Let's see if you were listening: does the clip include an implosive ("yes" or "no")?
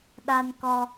yes